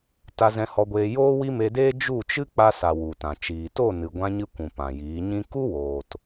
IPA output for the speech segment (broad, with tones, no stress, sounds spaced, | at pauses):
t a˧ z ɛ̃˧ h ɔ˧ ɡʷ eː˧ j oː˦ w i˦ m e˧ d eː˦ d͡ʒ u˦˨ t͡ʃ ɨ˦ k͡p a˧ s a˨ w u˨ t ã˨ t͡ʃ iː˨ t o˦˨ n ɨ˨ ɡʷ ã˧ ɲ ɨ˧ kʷ ũ˨ p ã˨ j iː˨˦ ɲ ĩ˦ k u˦ w oː˨ t